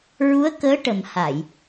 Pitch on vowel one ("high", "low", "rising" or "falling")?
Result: rising